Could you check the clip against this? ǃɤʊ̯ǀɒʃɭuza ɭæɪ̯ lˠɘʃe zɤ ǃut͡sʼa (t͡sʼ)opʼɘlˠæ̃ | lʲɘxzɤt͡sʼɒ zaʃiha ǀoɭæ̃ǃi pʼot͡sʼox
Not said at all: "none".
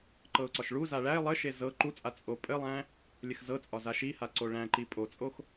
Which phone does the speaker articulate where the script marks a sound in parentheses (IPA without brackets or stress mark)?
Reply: t͡sʼ